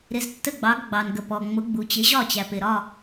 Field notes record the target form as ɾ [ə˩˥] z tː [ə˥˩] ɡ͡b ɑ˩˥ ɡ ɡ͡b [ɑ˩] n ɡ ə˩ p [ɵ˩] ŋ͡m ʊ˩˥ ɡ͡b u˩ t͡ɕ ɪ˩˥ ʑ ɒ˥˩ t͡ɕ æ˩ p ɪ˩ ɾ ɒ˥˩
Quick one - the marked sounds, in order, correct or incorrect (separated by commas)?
incorrect, correct, correct, incorrect